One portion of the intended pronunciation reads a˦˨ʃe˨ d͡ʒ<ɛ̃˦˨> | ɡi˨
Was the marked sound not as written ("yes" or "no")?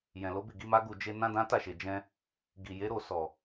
yes